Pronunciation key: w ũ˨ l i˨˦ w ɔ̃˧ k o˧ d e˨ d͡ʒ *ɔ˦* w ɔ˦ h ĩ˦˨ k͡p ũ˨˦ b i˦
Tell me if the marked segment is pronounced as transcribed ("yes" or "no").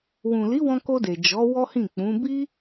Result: no